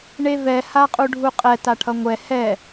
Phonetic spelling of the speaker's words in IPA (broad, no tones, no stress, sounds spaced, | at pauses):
ɳ e v ɛ h a qʼ u ɖʱ u qʼ ɛ t a ʈʰ ʌ ŋʷ ɛ h ɛ